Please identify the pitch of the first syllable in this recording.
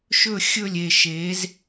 falling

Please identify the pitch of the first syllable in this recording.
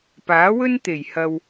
rising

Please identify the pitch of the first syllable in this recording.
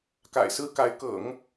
low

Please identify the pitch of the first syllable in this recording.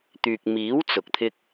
low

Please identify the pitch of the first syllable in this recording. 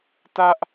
high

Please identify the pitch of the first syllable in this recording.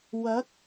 rising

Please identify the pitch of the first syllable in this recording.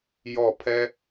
falling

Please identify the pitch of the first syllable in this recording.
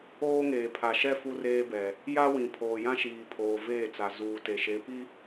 high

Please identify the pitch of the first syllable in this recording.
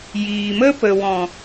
low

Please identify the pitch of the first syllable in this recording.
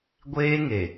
high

